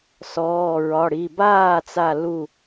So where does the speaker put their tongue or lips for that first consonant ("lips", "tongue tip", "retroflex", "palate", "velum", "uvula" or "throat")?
tongue tip